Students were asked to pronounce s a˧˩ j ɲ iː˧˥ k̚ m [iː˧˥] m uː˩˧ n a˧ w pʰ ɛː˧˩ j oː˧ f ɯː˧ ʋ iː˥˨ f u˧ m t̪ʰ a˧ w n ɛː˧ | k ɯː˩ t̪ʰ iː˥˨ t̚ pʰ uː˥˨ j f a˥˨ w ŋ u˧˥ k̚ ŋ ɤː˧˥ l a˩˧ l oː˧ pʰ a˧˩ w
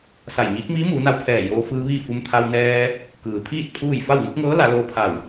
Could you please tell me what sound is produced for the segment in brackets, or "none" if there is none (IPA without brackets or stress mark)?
iː˧˥